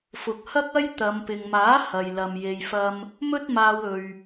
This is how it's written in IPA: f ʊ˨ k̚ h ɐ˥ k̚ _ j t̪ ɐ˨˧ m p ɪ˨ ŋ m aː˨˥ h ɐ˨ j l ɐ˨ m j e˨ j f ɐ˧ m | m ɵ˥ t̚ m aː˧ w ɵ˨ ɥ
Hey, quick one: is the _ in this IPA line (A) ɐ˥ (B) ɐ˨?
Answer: A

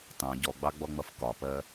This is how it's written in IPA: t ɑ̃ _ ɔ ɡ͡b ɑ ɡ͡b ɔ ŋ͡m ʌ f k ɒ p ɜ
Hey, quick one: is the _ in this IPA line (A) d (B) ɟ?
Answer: B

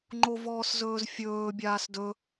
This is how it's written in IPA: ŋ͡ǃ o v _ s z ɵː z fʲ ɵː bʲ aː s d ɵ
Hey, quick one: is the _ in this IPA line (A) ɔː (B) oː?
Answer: A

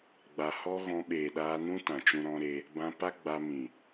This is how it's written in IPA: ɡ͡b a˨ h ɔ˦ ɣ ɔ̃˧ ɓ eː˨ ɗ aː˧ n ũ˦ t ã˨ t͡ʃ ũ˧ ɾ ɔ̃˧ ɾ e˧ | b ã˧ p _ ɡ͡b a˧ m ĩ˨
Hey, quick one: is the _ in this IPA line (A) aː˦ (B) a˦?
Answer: B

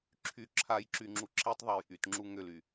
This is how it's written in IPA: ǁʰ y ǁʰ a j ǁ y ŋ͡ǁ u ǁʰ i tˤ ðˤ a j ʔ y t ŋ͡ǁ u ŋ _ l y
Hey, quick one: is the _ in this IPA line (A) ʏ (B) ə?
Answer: A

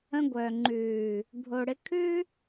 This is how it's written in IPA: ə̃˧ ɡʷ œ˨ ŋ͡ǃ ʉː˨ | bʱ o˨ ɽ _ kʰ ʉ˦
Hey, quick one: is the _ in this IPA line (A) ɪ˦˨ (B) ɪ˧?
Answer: B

